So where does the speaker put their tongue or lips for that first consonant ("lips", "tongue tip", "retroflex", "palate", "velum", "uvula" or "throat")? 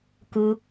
velum